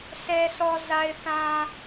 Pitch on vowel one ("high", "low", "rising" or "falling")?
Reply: low